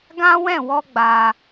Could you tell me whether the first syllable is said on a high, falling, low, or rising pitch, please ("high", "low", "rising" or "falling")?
high